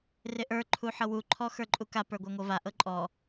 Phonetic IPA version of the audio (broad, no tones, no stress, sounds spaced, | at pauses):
r ɪ ʔ ə˞ ǃʰ u ħ ɤ w u ǃʰ ɔ x ə˞ ǃʼ u k a p ə˞ ɡʷ a ŋʷ ɤ v a ʔ ɤ ǃʼ ɔ